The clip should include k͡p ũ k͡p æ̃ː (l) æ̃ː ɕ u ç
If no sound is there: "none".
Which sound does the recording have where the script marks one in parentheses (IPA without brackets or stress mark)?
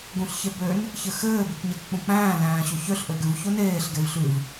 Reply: l